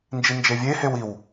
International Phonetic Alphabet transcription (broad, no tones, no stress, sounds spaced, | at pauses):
n d͡ʒ i n d͡ʒ e vʲ e h e w i w